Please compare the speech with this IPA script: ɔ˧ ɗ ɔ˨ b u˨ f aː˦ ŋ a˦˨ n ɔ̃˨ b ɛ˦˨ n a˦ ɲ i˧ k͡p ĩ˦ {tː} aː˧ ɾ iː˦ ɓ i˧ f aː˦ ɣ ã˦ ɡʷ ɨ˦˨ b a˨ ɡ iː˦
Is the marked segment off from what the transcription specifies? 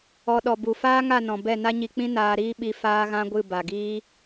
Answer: yes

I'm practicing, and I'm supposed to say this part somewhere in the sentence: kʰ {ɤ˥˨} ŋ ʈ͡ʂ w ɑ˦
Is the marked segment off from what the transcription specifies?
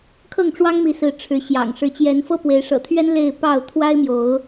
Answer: no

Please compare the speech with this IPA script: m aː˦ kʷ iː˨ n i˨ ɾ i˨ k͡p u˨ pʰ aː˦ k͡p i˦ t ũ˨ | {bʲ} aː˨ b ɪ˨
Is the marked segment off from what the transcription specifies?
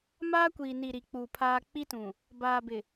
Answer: yes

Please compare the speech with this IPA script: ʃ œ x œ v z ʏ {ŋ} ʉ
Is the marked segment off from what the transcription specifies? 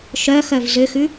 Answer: yes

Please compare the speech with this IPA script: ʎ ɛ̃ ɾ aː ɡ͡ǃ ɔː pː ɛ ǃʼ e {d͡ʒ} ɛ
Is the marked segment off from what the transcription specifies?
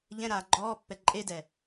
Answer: yes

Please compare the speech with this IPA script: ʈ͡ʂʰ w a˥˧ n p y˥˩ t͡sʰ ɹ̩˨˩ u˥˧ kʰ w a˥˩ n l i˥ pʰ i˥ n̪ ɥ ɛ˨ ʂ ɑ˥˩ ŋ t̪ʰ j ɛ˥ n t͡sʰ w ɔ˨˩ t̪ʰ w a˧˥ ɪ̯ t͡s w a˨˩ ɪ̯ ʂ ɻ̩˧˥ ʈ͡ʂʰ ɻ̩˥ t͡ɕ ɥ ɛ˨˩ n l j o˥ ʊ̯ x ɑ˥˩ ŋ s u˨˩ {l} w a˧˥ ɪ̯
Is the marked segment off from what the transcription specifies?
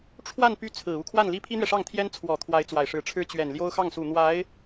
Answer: yes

